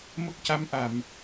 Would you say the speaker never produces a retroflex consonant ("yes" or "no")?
yes